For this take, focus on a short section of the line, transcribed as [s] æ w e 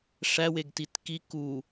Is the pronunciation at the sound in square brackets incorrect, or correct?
incorrect: ʂ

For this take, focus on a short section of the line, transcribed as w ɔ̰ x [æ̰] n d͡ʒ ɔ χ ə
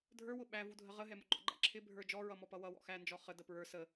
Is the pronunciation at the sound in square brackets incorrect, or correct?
incorrect: æ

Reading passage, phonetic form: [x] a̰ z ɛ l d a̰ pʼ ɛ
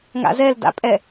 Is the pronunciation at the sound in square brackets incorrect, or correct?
incorrect: ŋ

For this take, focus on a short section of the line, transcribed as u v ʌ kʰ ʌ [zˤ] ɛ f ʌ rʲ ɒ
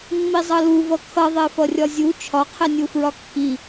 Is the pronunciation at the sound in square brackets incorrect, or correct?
incorrect: ðˤ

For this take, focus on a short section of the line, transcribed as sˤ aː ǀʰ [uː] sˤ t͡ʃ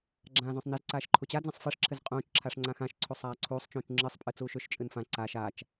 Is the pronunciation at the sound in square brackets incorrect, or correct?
correct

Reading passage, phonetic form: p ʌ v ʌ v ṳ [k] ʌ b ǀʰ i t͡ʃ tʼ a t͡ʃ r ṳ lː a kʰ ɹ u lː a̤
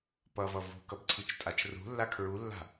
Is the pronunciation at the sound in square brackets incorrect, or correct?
correct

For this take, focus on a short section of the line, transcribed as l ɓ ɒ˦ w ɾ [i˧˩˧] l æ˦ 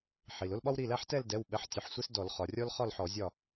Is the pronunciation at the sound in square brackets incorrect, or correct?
incorrect: i˩˧˩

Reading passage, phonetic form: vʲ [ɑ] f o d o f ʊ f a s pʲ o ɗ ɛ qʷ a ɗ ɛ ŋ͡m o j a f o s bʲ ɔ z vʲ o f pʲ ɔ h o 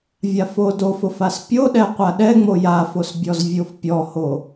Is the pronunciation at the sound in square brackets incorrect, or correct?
incorrect: a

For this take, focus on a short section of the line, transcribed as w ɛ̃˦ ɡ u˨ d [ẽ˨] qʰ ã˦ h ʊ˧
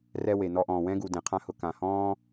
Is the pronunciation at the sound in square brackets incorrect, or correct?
correct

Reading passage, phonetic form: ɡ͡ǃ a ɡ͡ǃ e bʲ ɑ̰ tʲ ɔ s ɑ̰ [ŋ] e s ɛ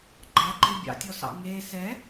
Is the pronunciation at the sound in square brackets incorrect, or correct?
correct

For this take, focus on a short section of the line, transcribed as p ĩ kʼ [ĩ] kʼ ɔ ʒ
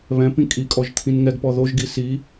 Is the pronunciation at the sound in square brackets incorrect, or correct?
incorrect: i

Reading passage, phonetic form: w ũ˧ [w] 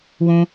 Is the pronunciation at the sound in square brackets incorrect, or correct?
incorrect: none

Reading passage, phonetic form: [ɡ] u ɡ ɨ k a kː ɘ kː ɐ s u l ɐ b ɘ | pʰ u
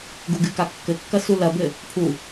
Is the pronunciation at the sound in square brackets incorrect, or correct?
correct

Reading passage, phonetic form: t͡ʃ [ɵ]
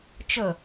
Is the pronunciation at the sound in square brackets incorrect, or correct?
correct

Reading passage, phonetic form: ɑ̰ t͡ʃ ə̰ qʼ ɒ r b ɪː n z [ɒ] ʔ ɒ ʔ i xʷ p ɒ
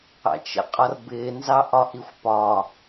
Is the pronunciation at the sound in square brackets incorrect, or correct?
incorrect: ɑ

